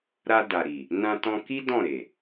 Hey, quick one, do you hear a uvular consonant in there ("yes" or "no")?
no